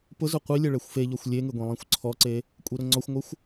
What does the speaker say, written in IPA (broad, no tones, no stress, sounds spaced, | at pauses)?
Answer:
p ʊ z ʊ qʷ i lʲ ɛ ɭ ɛ xʷ f e ʎ ɔ xʷ lʲ e ŋ ɪ ɡʷ ĩ lˠ ĩ xʷ ǀʰ ɔ ǀ e | kʷʼ i ɾ ʊ ŋ͡ǀ ɔ xʷ ŋʷ ɪ xʷ